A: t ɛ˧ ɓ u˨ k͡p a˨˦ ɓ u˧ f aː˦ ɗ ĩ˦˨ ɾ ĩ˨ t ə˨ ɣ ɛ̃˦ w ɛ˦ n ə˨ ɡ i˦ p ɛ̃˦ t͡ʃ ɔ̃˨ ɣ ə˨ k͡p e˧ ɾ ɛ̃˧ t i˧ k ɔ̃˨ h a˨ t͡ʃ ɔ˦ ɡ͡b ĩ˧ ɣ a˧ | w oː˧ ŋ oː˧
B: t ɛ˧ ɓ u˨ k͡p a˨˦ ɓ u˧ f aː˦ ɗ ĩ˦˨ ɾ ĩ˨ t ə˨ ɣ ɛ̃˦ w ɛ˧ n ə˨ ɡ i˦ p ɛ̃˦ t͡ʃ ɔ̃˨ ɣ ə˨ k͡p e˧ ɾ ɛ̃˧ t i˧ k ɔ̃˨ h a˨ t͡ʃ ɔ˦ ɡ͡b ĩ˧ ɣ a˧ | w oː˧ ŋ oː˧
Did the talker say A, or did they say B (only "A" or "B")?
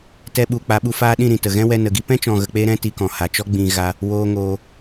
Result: B